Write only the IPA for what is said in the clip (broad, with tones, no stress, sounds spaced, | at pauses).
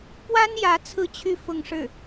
p w a˥ n j ä˧˥ t͡sʰ ɹ̩˥˧ t͡ɕʰ y˥˧ f ʊ˥˧ ŋ ʂ ɻ̩˥˩